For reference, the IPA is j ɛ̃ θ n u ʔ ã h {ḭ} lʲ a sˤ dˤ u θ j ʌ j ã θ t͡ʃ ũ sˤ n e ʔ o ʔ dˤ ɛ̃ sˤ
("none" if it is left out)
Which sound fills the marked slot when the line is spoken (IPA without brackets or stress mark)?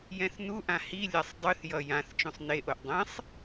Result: i